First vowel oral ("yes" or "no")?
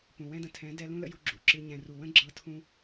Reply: no